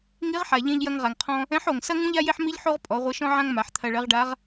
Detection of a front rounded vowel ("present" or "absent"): absent